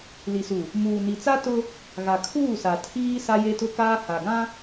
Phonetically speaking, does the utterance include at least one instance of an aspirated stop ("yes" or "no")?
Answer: yes